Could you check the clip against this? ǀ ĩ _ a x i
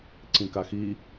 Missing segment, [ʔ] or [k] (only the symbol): k